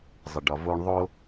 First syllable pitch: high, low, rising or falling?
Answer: low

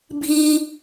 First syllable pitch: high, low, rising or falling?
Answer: high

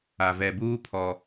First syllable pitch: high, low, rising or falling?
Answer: low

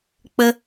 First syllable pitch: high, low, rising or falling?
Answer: low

